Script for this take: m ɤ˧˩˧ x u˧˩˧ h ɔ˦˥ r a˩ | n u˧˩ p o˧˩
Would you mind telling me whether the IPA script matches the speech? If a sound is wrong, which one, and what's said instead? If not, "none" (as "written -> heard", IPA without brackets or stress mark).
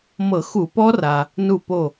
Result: h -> p